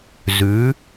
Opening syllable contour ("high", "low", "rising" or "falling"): rising